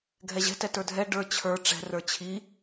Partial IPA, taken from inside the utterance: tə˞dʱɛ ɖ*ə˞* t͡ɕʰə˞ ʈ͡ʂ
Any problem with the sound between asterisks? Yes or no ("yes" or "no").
no